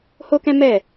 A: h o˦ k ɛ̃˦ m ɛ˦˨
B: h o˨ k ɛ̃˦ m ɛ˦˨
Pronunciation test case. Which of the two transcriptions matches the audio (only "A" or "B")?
A